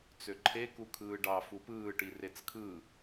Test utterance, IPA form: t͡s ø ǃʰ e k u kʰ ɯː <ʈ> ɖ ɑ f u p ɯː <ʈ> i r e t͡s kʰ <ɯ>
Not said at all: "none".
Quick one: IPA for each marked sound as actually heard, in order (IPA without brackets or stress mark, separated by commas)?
none, ʈ, ɯ